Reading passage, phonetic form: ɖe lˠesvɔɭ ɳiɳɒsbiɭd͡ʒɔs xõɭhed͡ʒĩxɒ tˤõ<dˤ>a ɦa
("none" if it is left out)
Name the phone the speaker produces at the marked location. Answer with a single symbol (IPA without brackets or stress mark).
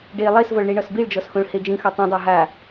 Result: dˤ